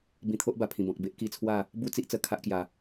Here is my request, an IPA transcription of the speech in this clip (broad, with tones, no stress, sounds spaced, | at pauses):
b ĩ˧ t̪ʰ o˦ ʔ b a˨˩ pʰ ĩ˨˩ b ɔ̃˨ k̚ b e˦ ʔ k i˧ t͡sʰ w a˥˧ | b u˥˧ t͡s i˦ ʔ t͡s ə˨˩ kʰ a˦ ʔ k j a˨˩